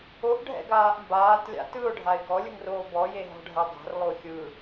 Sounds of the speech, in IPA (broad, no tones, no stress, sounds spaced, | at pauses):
o ʔ ɖʱ ɛ̰ ɡ aː ʔ m b aː t lʲ a̰ t ɯ ʊ̯ ɖʱ a ɪ̯ ɡ ɔ lʲ ɯ ŋ r oː b ɔ j e ɦ ɔ̤ ɖʱ ɛ dˤ a̤ r lˠ o xʲ ɯ